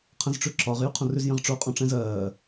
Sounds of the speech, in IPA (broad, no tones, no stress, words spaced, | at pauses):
qʰə̃zʈ͡ʂʉǁɒʁ jʉqʰõrʉz jə̃ʁʈ͡ʂo qʼõʈ͡ʂɛ̃zɜː